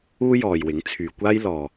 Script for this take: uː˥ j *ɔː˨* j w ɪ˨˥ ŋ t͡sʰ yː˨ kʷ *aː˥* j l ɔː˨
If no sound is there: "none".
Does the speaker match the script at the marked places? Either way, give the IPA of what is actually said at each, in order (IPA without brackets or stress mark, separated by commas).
ɔː˨, aː˥